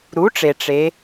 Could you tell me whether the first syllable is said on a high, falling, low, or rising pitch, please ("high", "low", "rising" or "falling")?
rising